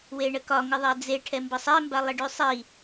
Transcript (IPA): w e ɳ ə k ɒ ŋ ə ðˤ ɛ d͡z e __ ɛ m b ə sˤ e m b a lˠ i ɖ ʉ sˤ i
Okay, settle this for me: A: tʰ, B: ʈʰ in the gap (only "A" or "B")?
B